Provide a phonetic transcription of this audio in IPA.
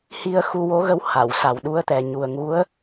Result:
h i˧ ə̯ x u˧ w o˧˥ ɣ ə˧ w h a˨˩˨ w s a˨˩ w ɗ u˧˥ ə̯ t̪ ɛ˨˩ ɲ u˨˩ ə̯ ŋ u˧˥ ə̯

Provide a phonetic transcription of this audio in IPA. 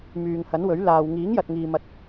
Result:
m yː˨ ŋ h ɐ˨˥ n w ɵ˨˥ ɥ l aː˨ w ŋ iː˨˥ ŋ j ɐ˨ t̚ ŋ iː˨ m ɐ˧ t̚

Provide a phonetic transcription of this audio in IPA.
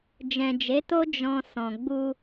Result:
d͡ʒ ɛ̃˨ d͡ʒ e˨˦ t o˦ d͡ʒ ɔ̃˧ s ɔ̃˨ ɡ͡b u˧

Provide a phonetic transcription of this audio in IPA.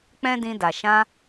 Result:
k͡p ɛ̃˦ d ĩ˧ d a˨ ʃ ã˧

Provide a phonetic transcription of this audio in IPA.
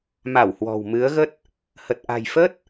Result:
m a˧˩ w h w ɔ̤˨˩ w m ɨ˨˦ ə̯ ɣ ə˦˥ t̚ | h ə˨˩ t̚ ʔ a̤˨˩ j f ə˦˥ t̚

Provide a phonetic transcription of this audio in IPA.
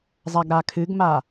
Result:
zˤ a ɡ ɾ a kʰ ɨ ɡ m a

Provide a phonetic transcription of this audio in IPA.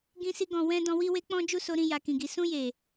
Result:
ɡ ĩ˦ s i˦ ɡ ɔ̃˧ w ɛ̃˧ d ɔ̃˧ w i˧ w e˦ k͡p ɔ̃˦ d͡ʒ u˦ s o˧ ɾ ĩ˧ j a˨ k ĩ˨ ɡ i˨ s ũ˧ j e˨

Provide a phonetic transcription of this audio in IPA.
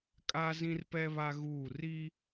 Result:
kʼ a˦ z ĩ˦ r p ɛ˦ β a˦ ɣ uː˦˨ r i˦

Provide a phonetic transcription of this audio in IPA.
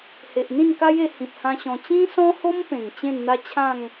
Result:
h e˨ ʔ n̪ ĩ˥˧ n k a˦ j e˧ h ĩ˨ p̚ h ã˧ ɕ ɔ̃˧ t͡ɕ ĩ˦ s ɔ̃˦ h o˦ m p ẽ˨˩ ŋ t͡ɕ ẽ˥˧ n n̪ a˦ t͡ɕʰ ã˥˧ ŋ

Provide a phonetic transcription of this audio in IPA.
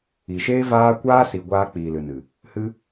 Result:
i˨ ʃ eː˦ v aː˦ kʷ aː˦ s i˨ ɡʷ aː˧ k͡p iː˨ l ɨ˨ n ɨ˨ | h ɨ˦

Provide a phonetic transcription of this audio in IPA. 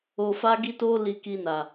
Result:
o˧ f a˦ ɡ i˦ t o˦ l i˧ k i˧ n a˨

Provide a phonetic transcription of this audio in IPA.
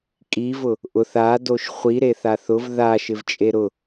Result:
kʼ i v ʊ | ʔ ʊ θ a d o ʃ χʷ i ɾ e θ a θ ʊ v ð a ʃ ɪ v t͡ʃʼ e ɾ ʊ

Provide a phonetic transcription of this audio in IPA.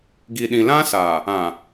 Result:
ɡ i˨ ɗ ĩ˨ l ã˦ s aː˨ | ã˨

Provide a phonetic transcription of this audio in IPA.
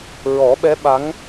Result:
ɹ ɔ˨˩˦ ɓ ɛ˧˥ ɓ a˧˥ ŋ

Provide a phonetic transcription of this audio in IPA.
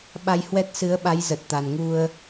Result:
ɓ a˧ j h w ɛ˦˥ t̚ s ɨ˨˦ ə̯ ɓ a˨˦ j z ə˨˩ t̚ t̪ a˨˩ n ŋ u˧ ə̯

